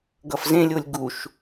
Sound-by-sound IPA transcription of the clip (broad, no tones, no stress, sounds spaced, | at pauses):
ɡ ʌ f z ẽ lʲ o lʲ ɡ u ʃ